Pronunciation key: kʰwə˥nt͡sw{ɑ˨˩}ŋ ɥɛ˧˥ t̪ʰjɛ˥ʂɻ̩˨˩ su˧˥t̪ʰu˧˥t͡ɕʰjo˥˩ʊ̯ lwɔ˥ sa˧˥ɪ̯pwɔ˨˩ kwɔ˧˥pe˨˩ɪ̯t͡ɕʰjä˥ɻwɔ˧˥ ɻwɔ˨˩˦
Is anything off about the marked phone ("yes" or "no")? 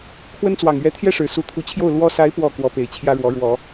no